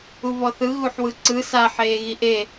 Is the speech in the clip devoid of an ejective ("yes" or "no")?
yes